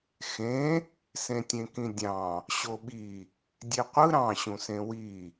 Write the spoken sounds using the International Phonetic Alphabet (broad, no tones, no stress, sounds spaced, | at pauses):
x ẽ | s ẽ tʲ ẽ k ĩ dʲ ɑ̃ | ɕ o ɓ i | dʲ e qʷ ɯ ɾ ɑ̃ ɕ ũ s ẽ w i